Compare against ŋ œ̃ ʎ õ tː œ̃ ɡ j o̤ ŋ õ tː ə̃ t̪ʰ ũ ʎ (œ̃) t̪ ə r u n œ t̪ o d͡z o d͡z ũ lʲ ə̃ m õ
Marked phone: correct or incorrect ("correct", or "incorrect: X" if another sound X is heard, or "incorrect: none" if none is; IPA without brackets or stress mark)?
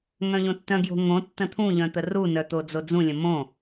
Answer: correct